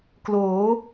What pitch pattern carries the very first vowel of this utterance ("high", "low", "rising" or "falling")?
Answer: rising